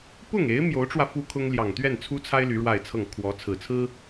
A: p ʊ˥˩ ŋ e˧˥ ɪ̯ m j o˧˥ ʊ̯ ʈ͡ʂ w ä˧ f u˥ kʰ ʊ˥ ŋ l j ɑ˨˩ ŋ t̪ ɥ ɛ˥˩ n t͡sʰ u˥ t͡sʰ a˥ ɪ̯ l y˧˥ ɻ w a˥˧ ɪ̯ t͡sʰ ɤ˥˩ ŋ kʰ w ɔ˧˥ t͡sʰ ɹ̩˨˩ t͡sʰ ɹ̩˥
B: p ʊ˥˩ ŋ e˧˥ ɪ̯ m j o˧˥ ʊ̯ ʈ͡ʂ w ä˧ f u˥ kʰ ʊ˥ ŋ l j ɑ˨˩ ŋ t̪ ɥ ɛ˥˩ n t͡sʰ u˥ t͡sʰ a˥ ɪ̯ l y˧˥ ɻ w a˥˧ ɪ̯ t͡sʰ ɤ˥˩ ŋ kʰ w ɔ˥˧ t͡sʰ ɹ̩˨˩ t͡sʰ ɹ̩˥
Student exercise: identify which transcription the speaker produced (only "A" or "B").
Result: A